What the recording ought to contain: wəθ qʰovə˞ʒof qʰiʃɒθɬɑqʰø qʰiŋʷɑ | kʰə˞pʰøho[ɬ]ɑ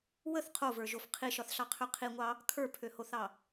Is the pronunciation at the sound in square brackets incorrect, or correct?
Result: incorrect: θ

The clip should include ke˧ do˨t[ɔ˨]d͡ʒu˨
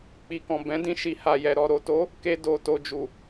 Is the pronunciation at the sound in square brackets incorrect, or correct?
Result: incorrect: o˨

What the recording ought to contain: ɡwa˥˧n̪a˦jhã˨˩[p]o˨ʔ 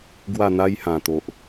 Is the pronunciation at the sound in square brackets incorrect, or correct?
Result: incorrect: t̪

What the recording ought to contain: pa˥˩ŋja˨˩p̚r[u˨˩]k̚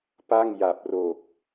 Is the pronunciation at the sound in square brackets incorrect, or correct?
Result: incorrect: o˨˩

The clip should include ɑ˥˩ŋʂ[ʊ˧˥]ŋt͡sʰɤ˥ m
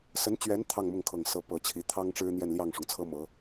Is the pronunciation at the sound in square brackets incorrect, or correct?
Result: incorrect: ʊ˩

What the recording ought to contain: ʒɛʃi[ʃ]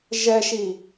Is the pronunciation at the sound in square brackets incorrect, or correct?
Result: incorrect: none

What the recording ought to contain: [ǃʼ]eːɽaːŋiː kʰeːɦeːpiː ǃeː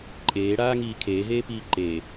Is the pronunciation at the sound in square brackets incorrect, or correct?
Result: correct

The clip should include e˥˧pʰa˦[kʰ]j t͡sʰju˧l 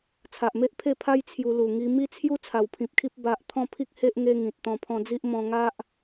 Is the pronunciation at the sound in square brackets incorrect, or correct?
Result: incorrect: none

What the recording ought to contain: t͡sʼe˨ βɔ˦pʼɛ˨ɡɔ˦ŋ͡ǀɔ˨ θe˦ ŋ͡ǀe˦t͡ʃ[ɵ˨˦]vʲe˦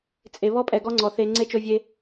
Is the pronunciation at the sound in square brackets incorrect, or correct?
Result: incorrect: ɵ˦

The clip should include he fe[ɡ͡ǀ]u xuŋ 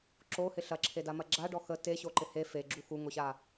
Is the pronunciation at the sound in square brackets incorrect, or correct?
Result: incorrect: ɡ͡ǁ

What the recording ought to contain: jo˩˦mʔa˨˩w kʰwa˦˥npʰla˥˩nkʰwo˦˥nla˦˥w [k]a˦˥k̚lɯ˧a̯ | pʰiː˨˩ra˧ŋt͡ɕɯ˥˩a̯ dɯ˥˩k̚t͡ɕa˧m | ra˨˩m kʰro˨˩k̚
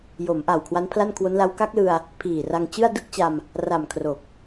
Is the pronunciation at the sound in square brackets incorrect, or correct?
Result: correct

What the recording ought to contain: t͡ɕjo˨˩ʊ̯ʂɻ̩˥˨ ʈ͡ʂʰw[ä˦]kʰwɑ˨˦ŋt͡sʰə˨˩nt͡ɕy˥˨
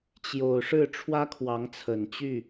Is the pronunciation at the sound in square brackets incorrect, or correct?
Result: correct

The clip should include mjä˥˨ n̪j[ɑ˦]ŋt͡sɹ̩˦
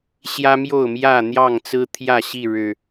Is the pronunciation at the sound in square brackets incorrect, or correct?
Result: incorrect: ɑ˥˨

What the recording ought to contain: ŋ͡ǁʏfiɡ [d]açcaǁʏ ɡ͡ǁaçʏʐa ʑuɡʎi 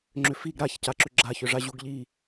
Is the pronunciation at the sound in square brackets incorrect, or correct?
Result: incorrect: ɾ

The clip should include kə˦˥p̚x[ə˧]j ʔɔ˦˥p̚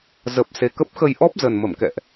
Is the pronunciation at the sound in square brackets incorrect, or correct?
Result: correct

